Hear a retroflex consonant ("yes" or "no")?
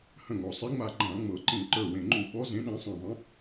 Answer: no